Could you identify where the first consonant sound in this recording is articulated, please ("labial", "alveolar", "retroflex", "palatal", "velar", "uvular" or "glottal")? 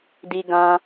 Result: alveolar